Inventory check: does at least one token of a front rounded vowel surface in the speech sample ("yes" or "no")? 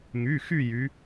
yes